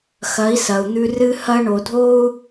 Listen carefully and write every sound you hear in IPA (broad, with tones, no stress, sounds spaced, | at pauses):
x ɐ˨˦ i̯ s ɐ˨ u̯ n̪ ʉ˧ r ɨ˦ h ɐ˦ ɳ o˨ dʱ o˦ u̯